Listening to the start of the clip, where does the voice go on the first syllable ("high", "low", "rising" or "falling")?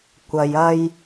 low